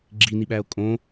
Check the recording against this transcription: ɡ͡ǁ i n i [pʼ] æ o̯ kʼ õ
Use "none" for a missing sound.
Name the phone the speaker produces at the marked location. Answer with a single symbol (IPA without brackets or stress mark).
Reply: ɓ